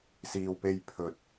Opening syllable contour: low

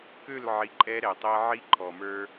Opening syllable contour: falling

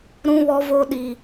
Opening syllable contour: high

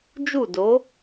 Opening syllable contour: falling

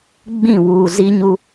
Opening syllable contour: falling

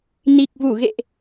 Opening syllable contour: low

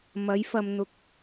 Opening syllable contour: rising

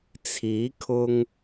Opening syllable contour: rising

